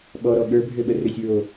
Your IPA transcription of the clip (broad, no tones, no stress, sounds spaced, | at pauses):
ɓ ɔ ɾ ɔ ɠ ə˞ bʱ ø ɓ ə r ø sʲ ɹ o